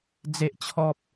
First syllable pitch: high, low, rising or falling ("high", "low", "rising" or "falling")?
high